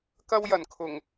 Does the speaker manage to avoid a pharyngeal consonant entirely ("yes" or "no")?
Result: yes